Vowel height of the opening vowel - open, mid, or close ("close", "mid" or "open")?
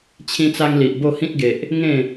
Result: close